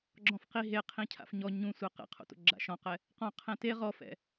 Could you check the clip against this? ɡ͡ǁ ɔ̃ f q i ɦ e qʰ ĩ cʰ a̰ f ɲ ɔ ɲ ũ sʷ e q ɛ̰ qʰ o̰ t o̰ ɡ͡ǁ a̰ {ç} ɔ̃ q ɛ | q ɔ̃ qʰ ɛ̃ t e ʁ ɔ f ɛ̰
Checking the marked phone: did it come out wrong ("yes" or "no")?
yes